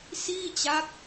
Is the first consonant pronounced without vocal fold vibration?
yes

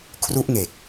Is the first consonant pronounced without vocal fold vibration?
yes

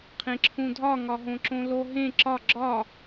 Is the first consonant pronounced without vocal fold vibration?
yes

